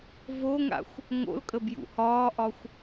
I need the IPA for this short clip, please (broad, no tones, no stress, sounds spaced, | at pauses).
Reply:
v o ŋ a̰ xʷ | ŋ o̰ l kʼ ə b j ṵ h ɒː ʔ ɒ xʷ